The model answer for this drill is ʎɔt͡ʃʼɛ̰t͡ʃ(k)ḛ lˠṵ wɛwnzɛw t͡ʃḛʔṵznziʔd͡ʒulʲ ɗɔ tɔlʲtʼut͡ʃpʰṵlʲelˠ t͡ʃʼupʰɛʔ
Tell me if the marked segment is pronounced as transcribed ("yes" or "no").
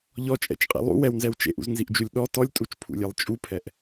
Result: no